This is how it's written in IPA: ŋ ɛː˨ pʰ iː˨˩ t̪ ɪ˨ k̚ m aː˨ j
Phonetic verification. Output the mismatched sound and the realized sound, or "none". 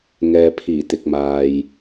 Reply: none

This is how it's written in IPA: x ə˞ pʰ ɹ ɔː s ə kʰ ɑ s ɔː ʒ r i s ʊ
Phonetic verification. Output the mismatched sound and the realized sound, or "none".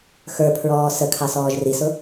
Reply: none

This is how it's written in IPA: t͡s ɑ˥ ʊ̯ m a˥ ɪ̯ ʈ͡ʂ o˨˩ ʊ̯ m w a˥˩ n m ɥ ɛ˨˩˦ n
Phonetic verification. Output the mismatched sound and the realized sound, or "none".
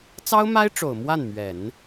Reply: none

